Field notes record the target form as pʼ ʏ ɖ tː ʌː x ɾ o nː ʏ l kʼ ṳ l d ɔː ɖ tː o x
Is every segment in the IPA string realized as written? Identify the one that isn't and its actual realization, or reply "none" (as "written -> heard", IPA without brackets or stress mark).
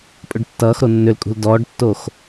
none